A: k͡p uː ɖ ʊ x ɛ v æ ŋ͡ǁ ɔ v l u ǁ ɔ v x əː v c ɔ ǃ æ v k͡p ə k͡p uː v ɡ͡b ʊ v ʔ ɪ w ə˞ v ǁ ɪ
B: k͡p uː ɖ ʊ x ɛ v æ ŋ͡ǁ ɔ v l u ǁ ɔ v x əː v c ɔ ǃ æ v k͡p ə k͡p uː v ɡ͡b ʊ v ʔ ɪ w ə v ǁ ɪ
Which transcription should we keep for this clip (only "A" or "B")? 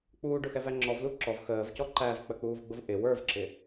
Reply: A